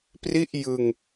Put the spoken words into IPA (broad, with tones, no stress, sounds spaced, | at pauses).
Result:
p r i˥˩ ʔ j ɯ˧ ŋ